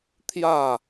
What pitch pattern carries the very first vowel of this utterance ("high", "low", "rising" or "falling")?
falling